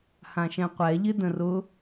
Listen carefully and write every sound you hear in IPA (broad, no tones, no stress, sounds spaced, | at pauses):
h ã ʃ ɛ̃ qʷ ɛ ʎ ɪ d ə̃ r ʊ